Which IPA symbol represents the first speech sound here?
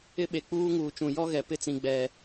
ɪ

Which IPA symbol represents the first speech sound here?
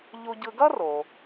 ʎ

